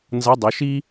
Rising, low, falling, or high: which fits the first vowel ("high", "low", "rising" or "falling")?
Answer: rising